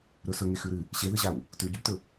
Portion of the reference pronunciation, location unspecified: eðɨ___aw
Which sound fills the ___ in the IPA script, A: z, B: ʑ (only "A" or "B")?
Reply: B